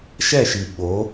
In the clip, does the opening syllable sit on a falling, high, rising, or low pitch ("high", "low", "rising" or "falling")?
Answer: falling